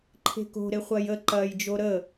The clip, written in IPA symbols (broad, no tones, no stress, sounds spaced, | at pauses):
ǃʰ e̤ k o̤ ɾ e χʷ ɐː j ə ǃ ɐː j d͡ʒ o ɾ ə